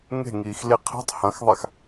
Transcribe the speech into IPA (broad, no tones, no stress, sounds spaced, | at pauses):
ŋ e̤ ŋ iː x l i qʰ e̤ tˤ h ɐ̃ x ðˤ a x